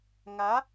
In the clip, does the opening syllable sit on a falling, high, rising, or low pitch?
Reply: rising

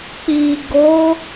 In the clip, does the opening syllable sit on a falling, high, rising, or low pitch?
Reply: low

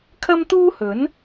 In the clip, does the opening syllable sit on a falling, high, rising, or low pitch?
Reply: high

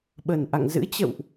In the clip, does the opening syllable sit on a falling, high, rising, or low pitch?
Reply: low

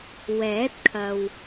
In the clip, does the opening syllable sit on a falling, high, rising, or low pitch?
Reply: rising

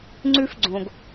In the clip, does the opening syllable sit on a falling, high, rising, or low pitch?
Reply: high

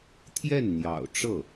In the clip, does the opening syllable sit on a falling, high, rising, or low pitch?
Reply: falling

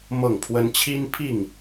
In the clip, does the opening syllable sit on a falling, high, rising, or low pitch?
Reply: falling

